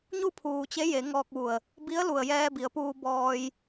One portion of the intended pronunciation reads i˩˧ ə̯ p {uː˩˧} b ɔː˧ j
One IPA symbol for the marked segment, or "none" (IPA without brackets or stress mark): uː˧